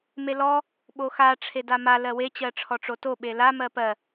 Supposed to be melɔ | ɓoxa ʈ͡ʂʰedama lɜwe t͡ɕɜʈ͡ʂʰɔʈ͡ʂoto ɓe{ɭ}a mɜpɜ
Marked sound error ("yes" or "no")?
yes